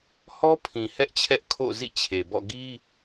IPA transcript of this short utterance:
h ɔ˦ pʰ ĩ˨ h ɛ˦ ʔ t͡ɕʰ ɛ˦ ʔ kʰ o̰˦˨ z ḭ˦˨ t͡ɕʰ e˨ b ɔ̰˦˨ ɡ i˦

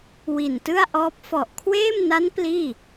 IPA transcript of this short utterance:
w i˨˩ n t ɯ˥˩ a̯ ʔ ɔː˦˥ p̚ f ɔ˨˩ ʔ kʰ w eː˥˩ m n a˦˥ n p l iː˥˩

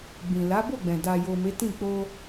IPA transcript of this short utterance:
ɡ͡b ĩ˨ l a˨˦ b o˦˨ ɡ͡b ɛ̃˨ d a˨ j o˨ m e˨˦ t ĩ˦˨ k͡p o˧

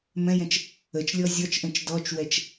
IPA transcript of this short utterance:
m ɛ̃ j ɛ̃ t͡ʃ | ə t͡ʃ lʲ ɔ zʲ ɔ t͡ʃ ʔ ɛ̃ t͡ʃ d ɔ t͡ʃ w ɛ t͡ʃ

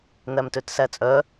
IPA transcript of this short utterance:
n̪ æ m t ø t s æ t͡sʼ œ

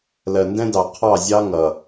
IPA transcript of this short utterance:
l ɜ˨ n d ɛ̃˦ d ɑ˨ qʰ ɑ˦˨ zʲ ɑ˦ ŋ ʌ˨

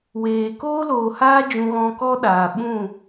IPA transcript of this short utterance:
w eː˨ k oː˦ l oː˨ h aː˦ d͡ʒ ũ˧ ɣ ɔ̃˧ k ɔ˦ ɗ aː˨ ɓ ũ˦˨

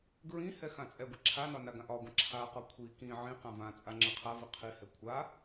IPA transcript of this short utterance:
ɡ ɹ ĩ h ɛ x ã t͡sʼ ɛ ɡʷ i ǁʰ a n ɒ n a ɡ ã ʔ ɒ ɡʷ ã ǁʰ a q ɒ kʷʰ i k ĩ ʕ ĩ q ã v ã t͡sʼ a ŋ͡ǁ ɛ qʰ a v i qʰ i h ɛ kʷʰ a

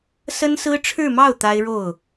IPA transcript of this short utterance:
s ə˥ n s ɹ̩˥ ʈ͡ʂʰ ɻ̩˥˧ m ɑ˥˩ ʊ̯ t̪ a˥ ɪ̯ ɻ o˥˩ ʊ̯

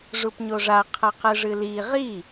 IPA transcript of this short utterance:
ʐ u p ɲ o ʐ a qʰ ɐ q ɨ ʐ ɨ l i ʁ i

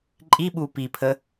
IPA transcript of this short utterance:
ǃʼ i ɓ uː p i pʰ ə

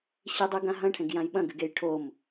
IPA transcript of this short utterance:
ɕ i dˤ ʉ ɡ ã ɦ ɐ̃ ʈʰ ẽ ɡ j ã j ɓ ɐ̃ ɡ ɨ ɡ e j ʈʰ o m

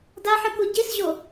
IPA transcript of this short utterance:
d a ħ ɨ k u ɟ i s ʑ o

